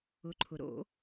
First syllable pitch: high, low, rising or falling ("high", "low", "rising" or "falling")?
rising